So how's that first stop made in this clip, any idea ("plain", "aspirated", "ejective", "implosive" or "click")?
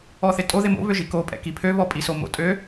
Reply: ejective